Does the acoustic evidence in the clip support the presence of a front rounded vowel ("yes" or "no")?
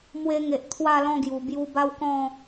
no